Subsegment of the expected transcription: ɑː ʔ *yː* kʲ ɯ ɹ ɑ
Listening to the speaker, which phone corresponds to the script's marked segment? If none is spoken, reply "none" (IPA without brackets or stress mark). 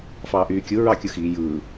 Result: yː